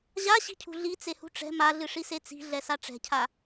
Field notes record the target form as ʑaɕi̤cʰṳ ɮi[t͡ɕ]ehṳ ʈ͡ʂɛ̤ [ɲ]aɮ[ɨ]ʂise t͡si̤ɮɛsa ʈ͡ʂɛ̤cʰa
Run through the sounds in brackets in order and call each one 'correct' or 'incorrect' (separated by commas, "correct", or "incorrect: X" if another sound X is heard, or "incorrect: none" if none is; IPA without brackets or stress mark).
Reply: incorrect: t͡s, incorrect: m, correct